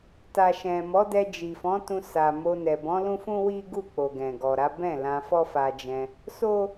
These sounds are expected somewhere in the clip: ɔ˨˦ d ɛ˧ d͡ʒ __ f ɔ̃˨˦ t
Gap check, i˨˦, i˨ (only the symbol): i˨